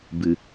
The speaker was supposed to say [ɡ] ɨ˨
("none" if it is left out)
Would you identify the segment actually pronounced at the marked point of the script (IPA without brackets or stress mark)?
b